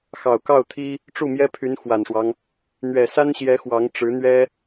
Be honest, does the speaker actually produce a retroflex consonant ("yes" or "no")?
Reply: yes